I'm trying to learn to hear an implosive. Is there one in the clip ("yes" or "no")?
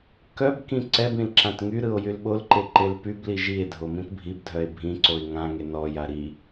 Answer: yes